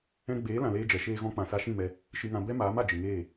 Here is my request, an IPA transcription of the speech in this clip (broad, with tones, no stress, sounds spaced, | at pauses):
ɛ̃˧ ɡ͡b eː˨˦ l ã˧ l eː˦ d͡ʒ ɛ˨˦ ʃ eː˧ ɣ ɔ̃˧ k͡p ã˨ s a˧ ʃ ĩ˦˨ m ɛ˧ | ʃ ɨ˧ ŋ ã˧ b ɛ˦ m aː˨˦ m a˨ d͡ʒ ɨ˨ ŋ eː˦˨